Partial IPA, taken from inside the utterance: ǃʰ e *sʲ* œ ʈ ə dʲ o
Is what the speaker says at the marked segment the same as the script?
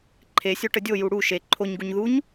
yes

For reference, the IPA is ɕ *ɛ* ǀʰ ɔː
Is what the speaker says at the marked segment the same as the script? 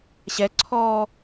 yes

